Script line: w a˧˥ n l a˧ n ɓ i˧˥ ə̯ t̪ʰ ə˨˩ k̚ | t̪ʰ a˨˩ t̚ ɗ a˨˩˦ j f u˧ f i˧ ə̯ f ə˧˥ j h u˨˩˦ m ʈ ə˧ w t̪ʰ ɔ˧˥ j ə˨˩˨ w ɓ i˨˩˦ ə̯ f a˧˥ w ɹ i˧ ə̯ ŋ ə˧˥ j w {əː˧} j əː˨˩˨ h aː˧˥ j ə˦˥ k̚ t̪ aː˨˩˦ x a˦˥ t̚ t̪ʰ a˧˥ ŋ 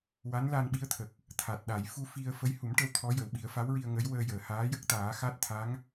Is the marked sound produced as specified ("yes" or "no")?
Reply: yes